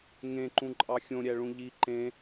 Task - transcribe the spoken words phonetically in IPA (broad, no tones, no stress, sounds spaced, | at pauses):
ŋ ẽ ǃ ũ ǃʼ ɑ xʲ õ ɾʲ æ ɭ ũ ʎ i ǃ ẽ